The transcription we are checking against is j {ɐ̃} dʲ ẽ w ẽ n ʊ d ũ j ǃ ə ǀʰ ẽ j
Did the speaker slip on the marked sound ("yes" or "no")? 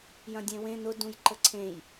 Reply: no